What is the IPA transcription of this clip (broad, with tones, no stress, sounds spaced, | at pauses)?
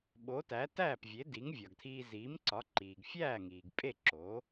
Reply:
ɓ o˩˥ t æ˩˥ t æː˥˩ p vʲ e˩˥ d i˩˥ ŋ vʲ ɒ˩ ɡ tʰ iː˧ z iː˩˥ m ǀ ɒ˩˥ ǃ iː˩ ɡ fʲ æː˥˩ ŋ iː˩ ɡ pʼ e˥˩ ǁ oː˩˥